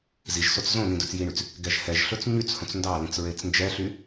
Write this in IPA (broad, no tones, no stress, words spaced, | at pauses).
ziʒsot͡s zõnĩ dɵt͡sjiɳyt͡s | ɡɛʒhɛʒɬɵt͡s ɲyt͡s hõt͡sndɑlĩt͡s ɹet͡snd͡ʒɛɬy